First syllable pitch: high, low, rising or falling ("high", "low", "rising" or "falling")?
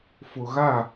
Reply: low